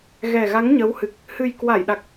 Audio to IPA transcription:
ɣ ɛ˨˩ ɣ a˨˦ ŋ ɲ ə˨˦ w h ɨ˨˩ k̚ | h ɨ˨˩ j k w a˧˩ j ɗ a˨˩ k̚

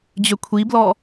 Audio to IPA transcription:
d͡ʑ ø kʷʰ i b l ɔ

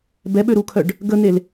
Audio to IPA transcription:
b ɛ ɓ ø ɾ u kʰ œ ɖ | ɡ ə n̪ e l

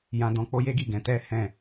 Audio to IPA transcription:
j ã˧ d ɔ̃˧ k͡p o˦ j e˦ ɡ i˦˨ ɡ ɛ̃˨˦ t ɛ˦ h ɛ̃˦˨

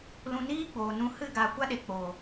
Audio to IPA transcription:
l ũ˧ n iː˦ ɡ͡b oː˨ n ũ˧ h ɨ˦˨ ɡ a˧ kʷ a˦ ɗ e˨ k͡p o˨

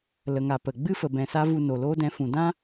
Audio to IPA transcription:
l ə˨ ŋ a˨ p ə˨ ɡ͡b ɨ˦ f ə˨ b ɛ̃˨ s a˧ v u˧ n o˨ l oː˦ d ɛ̃˧ f ũ˨ d ã˦

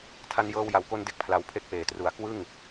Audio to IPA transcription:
tʰ a˧ n j ɤː˧ w j a˨˩ w k o˧ n d e˥˩ k̚ pʰ l a˧ w pʰ e˥˩ k̚ p eː˩˦ t r u˩˦ a̯ k w ɯ˥˩ ŋ

